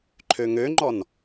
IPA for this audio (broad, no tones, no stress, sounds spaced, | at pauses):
ǃʰ ø ŋ ø ŋ͡ǃ ɔ n